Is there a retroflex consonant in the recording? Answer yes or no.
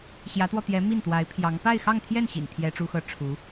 yes